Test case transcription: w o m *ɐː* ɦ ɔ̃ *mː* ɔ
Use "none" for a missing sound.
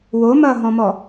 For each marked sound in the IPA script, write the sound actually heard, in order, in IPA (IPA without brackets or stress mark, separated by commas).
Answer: ɐː, m